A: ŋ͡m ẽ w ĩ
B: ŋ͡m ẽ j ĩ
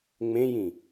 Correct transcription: B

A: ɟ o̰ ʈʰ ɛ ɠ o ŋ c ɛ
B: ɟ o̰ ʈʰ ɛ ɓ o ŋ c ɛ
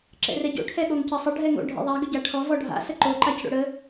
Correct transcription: A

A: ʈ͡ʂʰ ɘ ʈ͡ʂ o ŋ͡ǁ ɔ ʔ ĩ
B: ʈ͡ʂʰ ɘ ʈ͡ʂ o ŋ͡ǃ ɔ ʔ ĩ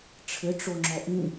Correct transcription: A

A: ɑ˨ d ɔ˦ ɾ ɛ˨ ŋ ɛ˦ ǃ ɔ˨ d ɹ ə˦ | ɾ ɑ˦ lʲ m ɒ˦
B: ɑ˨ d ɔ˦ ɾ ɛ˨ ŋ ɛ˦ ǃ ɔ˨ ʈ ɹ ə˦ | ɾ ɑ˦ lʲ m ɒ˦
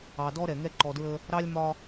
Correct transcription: A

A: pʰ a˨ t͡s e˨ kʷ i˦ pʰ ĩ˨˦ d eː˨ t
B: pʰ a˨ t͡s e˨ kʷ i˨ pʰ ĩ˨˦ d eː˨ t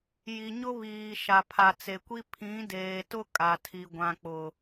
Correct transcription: A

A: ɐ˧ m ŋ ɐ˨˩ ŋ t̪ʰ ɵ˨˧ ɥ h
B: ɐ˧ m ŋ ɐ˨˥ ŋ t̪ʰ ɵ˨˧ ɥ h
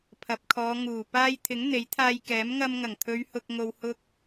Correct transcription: A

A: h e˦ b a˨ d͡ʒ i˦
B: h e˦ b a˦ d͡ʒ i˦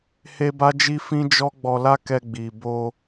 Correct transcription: B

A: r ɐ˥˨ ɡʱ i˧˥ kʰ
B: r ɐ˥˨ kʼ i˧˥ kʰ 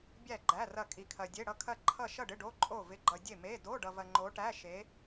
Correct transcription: B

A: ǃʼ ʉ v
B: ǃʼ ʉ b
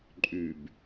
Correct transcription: B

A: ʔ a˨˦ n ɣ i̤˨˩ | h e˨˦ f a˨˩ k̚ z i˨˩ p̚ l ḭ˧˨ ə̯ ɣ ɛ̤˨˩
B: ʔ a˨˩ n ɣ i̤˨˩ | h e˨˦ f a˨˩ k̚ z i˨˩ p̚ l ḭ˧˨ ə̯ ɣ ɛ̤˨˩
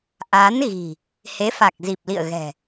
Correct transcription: A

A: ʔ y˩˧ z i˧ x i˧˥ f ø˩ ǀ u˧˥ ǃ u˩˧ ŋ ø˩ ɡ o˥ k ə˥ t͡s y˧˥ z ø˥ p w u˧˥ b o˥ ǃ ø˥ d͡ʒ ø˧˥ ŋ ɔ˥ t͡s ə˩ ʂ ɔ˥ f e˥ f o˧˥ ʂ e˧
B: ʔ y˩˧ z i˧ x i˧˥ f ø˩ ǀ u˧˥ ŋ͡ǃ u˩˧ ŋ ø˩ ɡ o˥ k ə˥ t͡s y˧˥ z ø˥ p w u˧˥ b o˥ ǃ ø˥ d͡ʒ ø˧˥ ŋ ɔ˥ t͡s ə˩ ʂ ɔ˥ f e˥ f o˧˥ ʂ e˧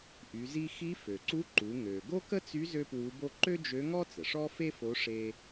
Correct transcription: A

